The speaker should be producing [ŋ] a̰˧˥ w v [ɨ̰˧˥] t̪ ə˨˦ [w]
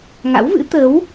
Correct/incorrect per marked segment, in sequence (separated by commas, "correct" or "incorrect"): correct, correct, correct